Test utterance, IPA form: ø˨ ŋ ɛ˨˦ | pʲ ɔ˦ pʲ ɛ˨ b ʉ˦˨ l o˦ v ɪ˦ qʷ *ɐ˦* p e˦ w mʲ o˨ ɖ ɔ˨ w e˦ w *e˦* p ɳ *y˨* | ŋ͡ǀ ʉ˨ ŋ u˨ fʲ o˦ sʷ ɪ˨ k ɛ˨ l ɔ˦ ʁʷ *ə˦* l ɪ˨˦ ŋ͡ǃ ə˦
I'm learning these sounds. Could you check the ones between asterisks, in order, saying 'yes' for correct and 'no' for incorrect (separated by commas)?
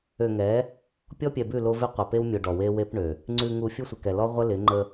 no, yes, no, yes